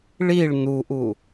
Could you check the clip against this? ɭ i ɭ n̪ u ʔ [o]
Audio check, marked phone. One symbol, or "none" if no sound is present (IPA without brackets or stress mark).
u